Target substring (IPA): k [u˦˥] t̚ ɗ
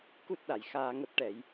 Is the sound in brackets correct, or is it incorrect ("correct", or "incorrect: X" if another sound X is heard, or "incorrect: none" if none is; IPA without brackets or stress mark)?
correct